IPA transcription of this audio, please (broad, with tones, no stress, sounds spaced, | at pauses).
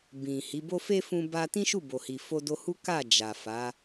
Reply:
b ĩ˨ h i˨˦ b o˦ f e˦ f ũ˧ b a˧ t ĩ˦ ʃ u˦˨ b o˨ h i˨ f o˧ d o˧ h u˦ k a˦˨ d͡ʒ a˨ f a˨˦